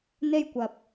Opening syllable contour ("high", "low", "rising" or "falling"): high